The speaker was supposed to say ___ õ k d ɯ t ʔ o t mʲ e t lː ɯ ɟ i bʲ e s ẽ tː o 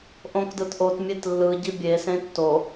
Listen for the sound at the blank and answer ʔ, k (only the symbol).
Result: ʔ